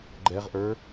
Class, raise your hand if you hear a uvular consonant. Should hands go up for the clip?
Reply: yes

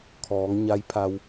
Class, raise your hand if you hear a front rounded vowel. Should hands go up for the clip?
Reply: no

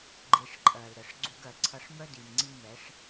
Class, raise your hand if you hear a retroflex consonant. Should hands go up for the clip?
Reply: yes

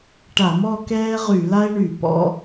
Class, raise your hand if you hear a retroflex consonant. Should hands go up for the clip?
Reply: yes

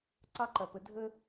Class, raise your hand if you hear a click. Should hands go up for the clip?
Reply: yes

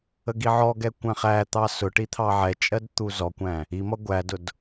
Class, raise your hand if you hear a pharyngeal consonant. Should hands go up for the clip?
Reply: yes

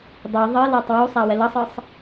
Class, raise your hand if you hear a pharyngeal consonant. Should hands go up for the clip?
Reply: no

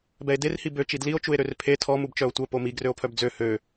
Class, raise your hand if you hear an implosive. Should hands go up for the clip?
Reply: no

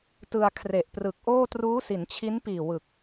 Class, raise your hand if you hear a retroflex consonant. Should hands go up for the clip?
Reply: no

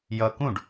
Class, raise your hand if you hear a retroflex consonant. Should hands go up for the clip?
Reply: yes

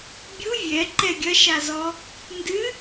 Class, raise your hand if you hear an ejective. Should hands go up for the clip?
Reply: no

